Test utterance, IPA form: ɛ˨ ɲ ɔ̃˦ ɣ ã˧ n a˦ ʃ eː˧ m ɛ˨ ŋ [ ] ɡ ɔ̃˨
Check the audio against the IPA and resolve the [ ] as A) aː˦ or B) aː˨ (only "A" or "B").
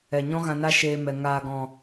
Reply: B